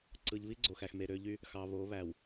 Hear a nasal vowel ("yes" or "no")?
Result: no